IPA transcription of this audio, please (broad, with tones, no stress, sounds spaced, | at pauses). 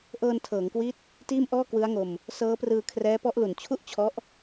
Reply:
ʔ ɤː˧ n tʰ ɤː˩˦ ŋ k w i˦˥ t̚ | t iː˥˩ m ʔ ɔː˥˩ k w ɯ˦˥ a̯ ŋ o˧ m | s ɤː˦˥ p r ɯː˧ kʰ r ɛː˦˥ p ɔ˦˥ ʔ l u˨˩ n t͡ɕʰ u˥˩ ʔ t͡ɕʰ ɔ˦˥ ʔ